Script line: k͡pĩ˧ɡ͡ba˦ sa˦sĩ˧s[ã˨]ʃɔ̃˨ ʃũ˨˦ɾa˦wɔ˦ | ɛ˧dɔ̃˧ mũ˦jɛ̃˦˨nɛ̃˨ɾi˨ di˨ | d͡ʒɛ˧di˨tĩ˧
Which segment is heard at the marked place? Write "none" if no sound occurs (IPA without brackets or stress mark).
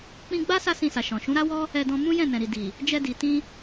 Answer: a˨